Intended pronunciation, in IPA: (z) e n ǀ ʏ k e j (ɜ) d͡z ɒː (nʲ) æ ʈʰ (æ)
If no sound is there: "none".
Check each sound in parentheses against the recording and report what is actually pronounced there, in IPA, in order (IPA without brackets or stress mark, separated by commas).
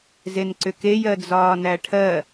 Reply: z, ɜ, n, ɜ